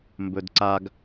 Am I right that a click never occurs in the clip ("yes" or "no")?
no